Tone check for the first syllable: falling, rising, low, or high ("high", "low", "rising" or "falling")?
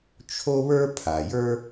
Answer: high